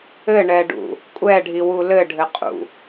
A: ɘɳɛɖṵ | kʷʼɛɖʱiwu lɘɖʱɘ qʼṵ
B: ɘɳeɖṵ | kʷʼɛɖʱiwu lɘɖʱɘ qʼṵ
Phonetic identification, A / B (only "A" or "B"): A